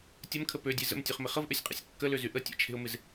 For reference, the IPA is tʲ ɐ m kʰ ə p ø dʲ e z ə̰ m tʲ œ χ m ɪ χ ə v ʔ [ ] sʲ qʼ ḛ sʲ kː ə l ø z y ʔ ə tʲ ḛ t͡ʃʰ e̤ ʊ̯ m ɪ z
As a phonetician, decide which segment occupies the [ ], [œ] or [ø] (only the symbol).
ø